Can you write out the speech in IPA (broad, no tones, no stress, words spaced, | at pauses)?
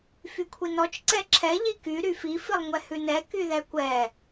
fykʷʰinɔt͡ʃ ǀɛǁʰɛ ʎiky ɾyfi filˠŋʷɛhʉnɛ kyðɛkʷɛ